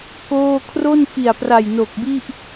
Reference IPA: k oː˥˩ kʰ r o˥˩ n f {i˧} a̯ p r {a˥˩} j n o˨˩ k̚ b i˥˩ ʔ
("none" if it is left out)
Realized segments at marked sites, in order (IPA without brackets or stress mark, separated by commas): i˨˩, a˨˩